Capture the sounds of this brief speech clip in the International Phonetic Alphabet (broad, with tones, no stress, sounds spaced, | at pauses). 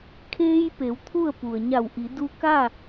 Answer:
kʰ eː˧ j p e˩˧ w t̪ʰ u˥˨ ə̯ p u˩ ə̯ ɲ a˧˩ w ʔ i˩˧ d u˧ k a˥˨